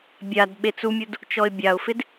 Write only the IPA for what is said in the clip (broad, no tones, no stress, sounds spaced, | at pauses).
bʲ a d ɓ e t͡s u mʲ u d | t͡ʃ ɔ ɪ̯ bʲ a ʊ̯ f ɪ d